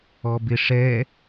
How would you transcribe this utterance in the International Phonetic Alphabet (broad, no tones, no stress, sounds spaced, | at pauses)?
ɔ b ɪ ʂ ɛ